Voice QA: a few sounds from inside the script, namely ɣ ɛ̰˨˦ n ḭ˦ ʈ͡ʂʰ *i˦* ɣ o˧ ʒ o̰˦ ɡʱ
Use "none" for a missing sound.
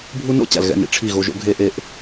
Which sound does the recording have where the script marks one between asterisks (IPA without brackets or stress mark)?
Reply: i˦˨